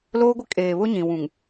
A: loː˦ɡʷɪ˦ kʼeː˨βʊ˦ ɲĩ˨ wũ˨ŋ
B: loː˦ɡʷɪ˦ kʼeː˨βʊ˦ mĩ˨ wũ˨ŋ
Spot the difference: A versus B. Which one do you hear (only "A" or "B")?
A